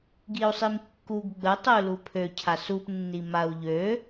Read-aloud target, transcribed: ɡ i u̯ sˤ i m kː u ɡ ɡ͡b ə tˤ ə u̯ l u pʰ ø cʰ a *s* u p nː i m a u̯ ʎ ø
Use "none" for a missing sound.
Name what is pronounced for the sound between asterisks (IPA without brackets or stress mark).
s